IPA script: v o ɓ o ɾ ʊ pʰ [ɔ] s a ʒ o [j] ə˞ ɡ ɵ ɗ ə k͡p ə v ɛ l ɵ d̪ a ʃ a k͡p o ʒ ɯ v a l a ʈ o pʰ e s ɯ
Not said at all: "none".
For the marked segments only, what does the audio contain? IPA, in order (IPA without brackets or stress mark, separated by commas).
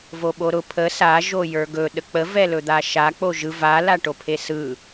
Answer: ə, j